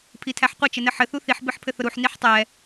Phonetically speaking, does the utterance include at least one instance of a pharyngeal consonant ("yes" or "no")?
yes